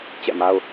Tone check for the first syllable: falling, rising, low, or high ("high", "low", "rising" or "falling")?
falling